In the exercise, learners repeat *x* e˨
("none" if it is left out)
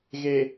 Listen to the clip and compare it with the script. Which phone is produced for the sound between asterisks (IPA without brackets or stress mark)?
ɣ